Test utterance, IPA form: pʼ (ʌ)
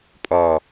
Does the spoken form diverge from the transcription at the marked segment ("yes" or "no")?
yes